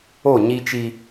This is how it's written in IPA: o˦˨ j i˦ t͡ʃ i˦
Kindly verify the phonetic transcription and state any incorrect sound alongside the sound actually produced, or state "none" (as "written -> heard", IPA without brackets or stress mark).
j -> ɲ